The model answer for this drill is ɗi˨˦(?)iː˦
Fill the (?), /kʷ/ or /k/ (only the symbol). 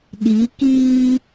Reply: k